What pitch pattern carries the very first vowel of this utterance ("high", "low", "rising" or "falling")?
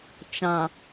low